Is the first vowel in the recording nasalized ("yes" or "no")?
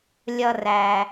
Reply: no